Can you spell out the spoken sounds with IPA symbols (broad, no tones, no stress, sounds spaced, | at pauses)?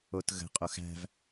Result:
o t ɣ ə̤ qʼ o x æ̤ v